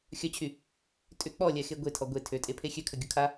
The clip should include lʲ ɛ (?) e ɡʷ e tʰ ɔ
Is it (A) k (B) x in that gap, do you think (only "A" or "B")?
B